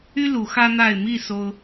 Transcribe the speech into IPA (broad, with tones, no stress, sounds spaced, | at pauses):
y˦ l u˨˦ x ä˦ n̪ a˥˨ ɪ̯ m i˥˨ s o˦ ʊ̯